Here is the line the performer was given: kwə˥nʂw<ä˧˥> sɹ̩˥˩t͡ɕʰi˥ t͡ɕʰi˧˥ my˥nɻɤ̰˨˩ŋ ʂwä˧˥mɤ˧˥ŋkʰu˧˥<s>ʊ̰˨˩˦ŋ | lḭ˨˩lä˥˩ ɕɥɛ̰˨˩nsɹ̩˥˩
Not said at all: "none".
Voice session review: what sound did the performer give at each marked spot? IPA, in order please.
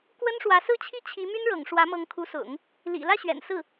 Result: ä˧˥, s

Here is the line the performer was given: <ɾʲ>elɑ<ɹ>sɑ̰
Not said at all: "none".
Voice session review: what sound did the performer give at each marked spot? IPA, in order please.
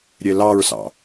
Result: ɾʲ, ɹ

